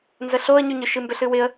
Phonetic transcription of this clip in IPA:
n z ə ɬ o ə̯ ɲ ʉ ɲ ʏ ʃ ɨ m b ʏ ɬ ɨ w ɪ ə̯

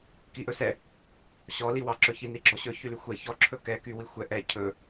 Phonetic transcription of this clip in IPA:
k i ʔ ɵ s ɛ | ɕ ɔ l i w ɑ ǁ ɵ ç i n i ɡ͡ǁ ɔ ɕ ɵ ç y l y xʷ ɛ ç ɔ ǁʰ ɵ k ɛ k y w i xʷ ɛ ʔ ɛ cʰ ɵ

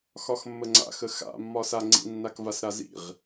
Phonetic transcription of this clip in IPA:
x ɒ x mː ə ŋ͡ǀ a̰ x ə x a̰ mː ɒ s a ŋ͡ǀ ḭ nː a k v a s ɾ a z ḭ ʁ

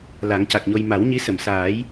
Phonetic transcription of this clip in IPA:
l a˨˩˦ ŋ c a˨˩ k̚ ɲ o˧ j m a˨˩˦ w ɲ i˧˥ s ə˨˩˨ m s aː˨˩˦ j

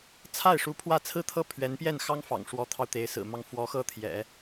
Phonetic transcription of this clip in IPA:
t͡sʰ a˥˩ ɪ̯ ʂ u˧˥ pʰ w ä˥˩ t͡sʰ ɹ̩˥ t̪ʰ ɤ˥˩ pʰ ɥ ɛ˧˥ n p j ɛ˥˩ n x ɑ˥ ŋ f ɑ̰˨˩ ŋ ʂ w ɔ˧˥ t̪ʰ ɑ˧ ʊ̯ t̪ e˧˥ ɪ̯ s ɹ̩˨˩ m ɑ˥˩ ŋ f w ɔ˧˥ x ɤ˥ t̪ʰ j ɛ̰˨˩˦

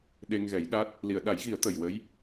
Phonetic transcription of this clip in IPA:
ɗ e˧ ŋ ɣ ɛ˨˩˦ j ɗ a˦˥ t̚ | l i˨˩˨ ə̯ ɗ a˨˩˦ j ɣ i˨˩˦ ə̯ t̪ ə˨˩ j w ə˧˥ j

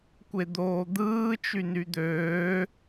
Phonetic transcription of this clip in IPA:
kʷ e d̪ oː d̪ ɯː t͡ʃ y n y d̪ øː

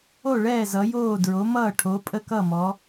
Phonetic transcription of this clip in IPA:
o˥˨ ɭ ɛː˥˨ z ʌ˨˦ j oː˥˨ d ɹ o˨˦ m ʌː˥˨ ʈʰ o˨˦ pʼ ə˥˨ k ʌ˥˨ m ɔ˨˦

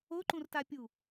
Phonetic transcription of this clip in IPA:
o ǃ ũ r t a pʲ u

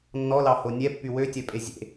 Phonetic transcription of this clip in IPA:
nː ɔ l ɑ h o nʲ ɛ pː y w ø tʲ œ pʼ e zʲ ḛ

